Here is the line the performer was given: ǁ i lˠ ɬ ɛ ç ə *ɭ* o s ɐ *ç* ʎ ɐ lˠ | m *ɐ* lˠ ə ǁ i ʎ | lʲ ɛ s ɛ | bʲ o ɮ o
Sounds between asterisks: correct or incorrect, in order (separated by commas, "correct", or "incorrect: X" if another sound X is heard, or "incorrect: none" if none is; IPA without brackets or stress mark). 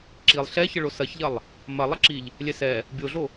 correct, correct, correct